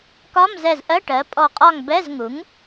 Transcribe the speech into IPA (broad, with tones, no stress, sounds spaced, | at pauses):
k ɒ˧˥˧ m z ɛ˧˩ z ʔ ɜ˧˥˧ ʈ ɜ˩˥ pʼ ɔ˧˩ qʼ ɒ˥˨ ŋ b ɛ˧˥˧ z ŋ u˩˥ ŋ